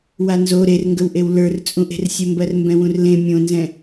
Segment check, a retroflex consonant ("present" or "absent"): absent